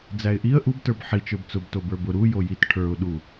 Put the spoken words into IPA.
d͡zæɪ̯ʔiə̯ ʔubtə˞b ħi t͡ʃə˞bt͡sʊb tobə˞bʊ ɾu jojit ʈʰə˞ʊ̯ɗu

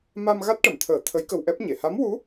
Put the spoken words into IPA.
ma˧m ɣa˦˥t̚ʈə˨˩˨mt̪ʰəː˨˩˦ t̪ʰə˧˥jkə˧wʔɛ˦˥p̚ɲe˨˩˨ ha˧˥mwu˧˥

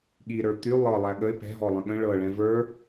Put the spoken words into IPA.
ɠiɾə˞ t̪y lˠɤ lˠæɠəɪ̯ pɛ̤ɦɔlˠə̃ ɠə̃ ɭɤɭɛ̃ və˞

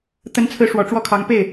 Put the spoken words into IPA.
t̪ə˧˥nt͡sʰɹ̩˧˥ ʂwɔ˨˩ʈ͡ʂwɔ˥˩kʰɑ˧˥ŋ pe˥˩ɪ̯

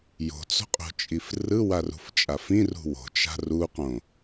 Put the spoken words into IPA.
jo̤t͡so̤qʼo̤t͡ʃʼif rɯwarṳft͡ʃʼaf ĩrṳ wo̤t͡ʃa̤ ruqõ

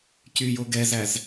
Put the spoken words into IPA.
cyjo ɡɛzæz

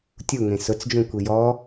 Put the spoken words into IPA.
tʲuŋẽ sʊt͡sd͡ʒũkʷi jɔ

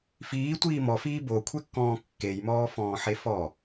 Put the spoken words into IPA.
fiːtʷiː mɔfiː bokʷʰekːɔ̃ː kːejmɔːfɔ̃ːħe fɔ

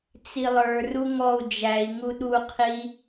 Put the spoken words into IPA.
t͡silˠə˞ ruŋɔu̯ d͡ʒæi̯ ŋuɗu qʰi

